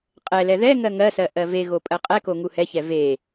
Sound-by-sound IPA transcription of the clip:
qʼ ɛ l ɛ ð ɛ ŋ ɜ ŋ ɜ s ɜ ʔ ɜ v e ɣ o pʼ ɜ qʼ ɛ k o ŋ u h ɛ ç ɛ v e

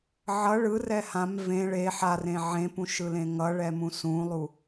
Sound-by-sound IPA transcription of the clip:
ʕ ʌ ɭ ɯ r ɛ h ã m v ẽ ɭ e ħ a r ẽ ʕ ẽ p ũ ʃ ɯ l ẽ ŋ ʌ ɭ ɛ m ũ s ũ lˠ u

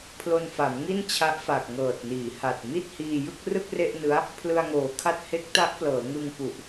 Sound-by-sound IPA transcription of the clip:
pʰ l o˧ n f a˩˦ m ŋ i˥˩ n t͡ɕʰ a˦˥ ʔ f a˨˩ k̚ ŋ ɤː˨˩ t̚ n iː˩˦ h a˨˩ t̚ m i˥˩ t̚ h iː˧ j ɯ˥˩ k̚ r ɯ˥˩ k̚ r e˥˩ ʔ n ɯ˦˥ a̯ | pʰ l ɯ˧ a̯ ŋ oː˨˩ kʰ a˦˥ t̚ h e˦˥ k̚ t a˦˥ ʔ p l ɤː˩˦ ŋ ɯ˧ ŋ p u˨˩ ʔ

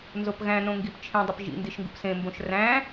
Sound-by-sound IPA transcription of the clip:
n z o p ɣ æ̃ n õ ŋ ɡ i p t͡ʃʰ ĩ dˤ i p ʒ ḭ n d i ʃ ŋ ɡ ṵ p s ẽ m b õ ʃ r æ̃

